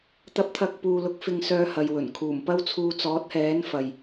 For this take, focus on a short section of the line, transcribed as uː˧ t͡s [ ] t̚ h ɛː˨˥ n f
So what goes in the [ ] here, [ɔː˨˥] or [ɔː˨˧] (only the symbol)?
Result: ɔː˨˥